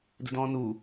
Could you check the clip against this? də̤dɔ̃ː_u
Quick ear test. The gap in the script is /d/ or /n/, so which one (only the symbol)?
n